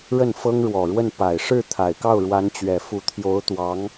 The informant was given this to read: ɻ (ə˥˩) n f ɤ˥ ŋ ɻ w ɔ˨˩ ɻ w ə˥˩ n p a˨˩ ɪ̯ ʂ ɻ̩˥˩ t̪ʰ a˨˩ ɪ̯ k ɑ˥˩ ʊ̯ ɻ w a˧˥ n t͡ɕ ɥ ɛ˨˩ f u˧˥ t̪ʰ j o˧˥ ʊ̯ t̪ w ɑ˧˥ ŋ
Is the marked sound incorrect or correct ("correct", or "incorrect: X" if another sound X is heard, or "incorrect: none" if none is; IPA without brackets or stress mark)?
correct